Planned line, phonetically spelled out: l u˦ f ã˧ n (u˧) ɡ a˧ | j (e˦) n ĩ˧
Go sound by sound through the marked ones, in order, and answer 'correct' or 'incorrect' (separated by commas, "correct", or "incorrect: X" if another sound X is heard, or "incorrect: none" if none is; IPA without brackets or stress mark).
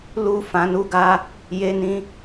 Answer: correct, incorrect: e˧